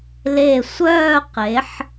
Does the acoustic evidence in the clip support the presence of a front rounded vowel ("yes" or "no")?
yes